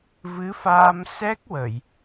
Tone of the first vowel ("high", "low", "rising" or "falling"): rising